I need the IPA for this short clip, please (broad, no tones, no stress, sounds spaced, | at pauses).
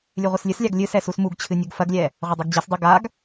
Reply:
lʲ ɨ ʁʷ ɨ s lʲ ɨ s lʲ a ɡ lʲ ɨ s ɛ s u s m u ɡ t͡ɕʰ ɨ nʲ u ɡ f ɐ ɡ lʲ ɛ | ʁʷ ɐ dˤ u ɡ d͡ʑ ɛ s dˤ u ɡ a ɡ